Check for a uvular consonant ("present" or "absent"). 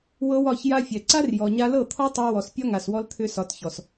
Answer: absent